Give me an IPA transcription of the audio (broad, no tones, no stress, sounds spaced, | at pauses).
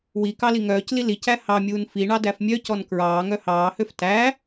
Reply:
w i k ɑ l i ŋ œː c l i l i c æ h ɑ mʲ uː n f i ɳ ɑ d æ f mʲ œ c ɔ n k ɹ ɑː ŋ œ h ɑː h ø f t æ